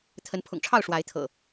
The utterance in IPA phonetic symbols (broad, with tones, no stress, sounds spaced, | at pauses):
t̪ʰ ə˨˦ n pʰ ʊ̰˨˩ ŋ ʈ͡ʂʰ ɑ˥˨ ʊ̯ ʂ w a˨˦ ɪ̯ t̪ʰ ɤ̰˨˩